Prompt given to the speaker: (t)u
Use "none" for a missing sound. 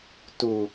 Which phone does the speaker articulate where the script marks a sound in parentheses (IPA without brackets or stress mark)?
t